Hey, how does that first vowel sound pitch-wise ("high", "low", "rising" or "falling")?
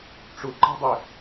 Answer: low